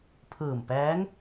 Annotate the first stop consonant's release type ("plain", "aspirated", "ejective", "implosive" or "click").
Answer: aspirated